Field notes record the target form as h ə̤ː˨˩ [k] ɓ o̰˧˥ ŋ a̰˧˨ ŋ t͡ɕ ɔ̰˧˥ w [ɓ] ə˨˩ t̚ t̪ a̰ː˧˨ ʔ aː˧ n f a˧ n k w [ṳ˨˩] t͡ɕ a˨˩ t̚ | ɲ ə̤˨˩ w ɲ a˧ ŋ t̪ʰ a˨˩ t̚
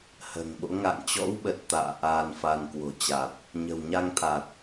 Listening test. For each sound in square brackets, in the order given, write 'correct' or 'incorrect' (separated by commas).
incorrect, correct, incorrect